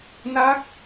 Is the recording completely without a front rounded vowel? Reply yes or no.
yes